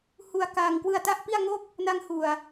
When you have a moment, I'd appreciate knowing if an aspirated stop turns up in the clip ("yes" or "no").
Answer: no